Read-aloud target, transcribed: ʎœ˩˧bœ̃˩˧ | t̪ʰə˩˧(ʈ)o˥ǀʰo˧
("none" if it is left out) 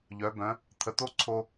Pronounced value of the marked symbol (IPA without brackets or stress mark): t̪